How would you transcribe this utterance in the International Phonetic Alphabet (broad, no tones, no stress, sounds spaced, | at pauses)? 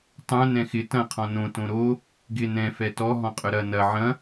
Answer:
tˤ œ̃ n ɛ̃ x ɪ t ɐ̃ qʰ ɔ̃ n õ t õ ɾ o | ɡ ɪ n ɛ̃ f ɛ t ɔ ɦ ɔ̃ qʼ œ ɾ ɐ n ɐ ʕ ɐ̃